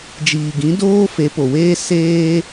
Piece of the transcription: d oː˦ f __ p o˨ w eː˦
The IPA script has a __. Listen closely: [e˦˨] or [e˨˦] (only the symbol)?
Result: e˨˦